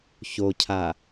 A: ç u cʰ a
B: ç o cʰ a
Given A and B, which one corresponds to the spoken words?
B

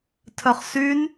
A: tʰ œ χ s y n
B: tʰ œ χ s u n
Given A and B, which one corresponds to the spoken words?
A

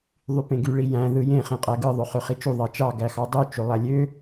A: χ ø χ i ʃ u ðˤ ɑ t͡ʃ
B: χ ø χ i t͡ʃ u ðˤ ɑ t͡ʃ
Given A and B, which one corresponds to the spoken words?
B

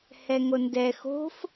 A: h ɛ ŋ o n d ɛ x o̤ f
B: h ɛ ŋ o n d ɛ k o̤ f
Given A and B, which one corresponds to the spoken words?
A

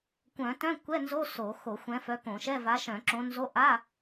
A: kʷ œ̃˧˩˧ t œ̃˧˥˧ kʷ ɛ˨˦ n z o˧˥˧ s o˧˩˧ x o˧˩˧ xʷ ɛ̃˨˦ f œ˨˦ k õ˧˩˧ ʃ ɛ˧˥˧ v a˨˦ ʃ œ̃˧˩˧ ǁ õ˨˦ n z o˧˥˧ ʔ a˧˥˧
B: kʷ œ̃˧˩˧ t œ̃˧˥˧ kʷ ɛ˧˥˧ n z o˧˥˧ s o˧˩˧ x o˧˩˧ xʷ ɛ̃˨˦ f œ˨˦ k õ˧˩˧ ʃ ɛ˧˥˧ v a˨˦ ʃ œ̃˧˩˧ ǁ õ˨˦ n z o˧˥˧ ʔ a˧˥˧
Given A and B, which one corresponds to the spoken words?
B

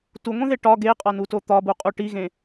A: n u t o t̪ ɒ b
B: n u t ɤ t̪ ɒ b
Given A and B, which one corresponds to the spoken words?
A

